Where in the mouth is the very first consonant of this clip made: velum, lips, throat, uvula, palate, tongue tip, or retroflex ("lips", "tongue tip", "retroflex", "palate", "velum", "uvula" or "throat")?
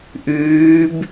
throat